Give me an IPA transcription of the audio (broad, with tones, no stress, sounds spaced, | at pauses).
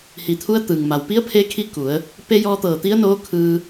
h i˩ t̪ʰ u˧˥ ə̯ t̪ ɯː˩ ŋ m a˩ w p i˧˥ ə̯ pʰ e˧ kʰ i˧ k u˩˧ ə̯ | p e˧ j ɔː˧ t̪ ɤː˧˩ t̪ i˧˥ ə̯ n oː˧˥ kʰ ɯː˧